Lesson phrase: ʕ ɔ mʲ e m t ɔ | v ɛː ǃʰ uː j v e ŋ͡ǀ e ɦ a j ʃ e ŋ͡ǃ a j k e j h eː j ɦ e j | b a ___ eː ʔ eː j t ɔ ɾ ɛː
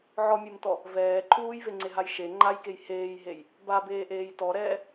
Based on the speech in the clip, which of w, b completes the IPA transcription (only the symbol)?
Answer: b